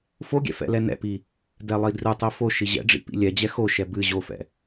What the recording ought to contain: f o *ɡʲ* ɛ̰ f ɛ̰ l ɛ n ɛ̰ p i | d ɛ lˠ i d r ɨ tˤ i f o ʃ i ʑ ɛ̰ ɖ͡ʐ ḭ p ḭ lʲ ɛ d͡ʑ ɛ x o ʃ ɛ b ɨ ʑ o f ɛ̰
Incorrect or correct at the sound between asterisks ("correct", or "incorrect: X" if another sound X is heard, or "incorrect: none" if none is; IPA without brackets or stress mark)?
correct